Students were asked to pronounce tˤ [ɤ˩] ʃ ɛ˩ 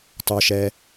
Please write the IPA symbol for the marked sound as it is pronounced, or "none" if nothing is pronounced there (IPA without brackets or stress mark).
o˩